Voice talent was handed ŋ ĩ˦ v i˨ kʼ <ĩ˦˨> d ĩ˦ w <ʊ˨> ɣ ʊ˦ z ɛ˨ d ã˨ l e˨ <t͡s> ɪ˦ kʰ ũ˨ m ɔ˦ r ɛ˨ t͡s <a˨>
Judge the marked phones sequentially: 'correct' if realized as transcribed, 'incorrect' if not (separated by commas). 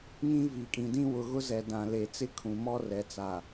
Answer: incorrect, correct, correct, correct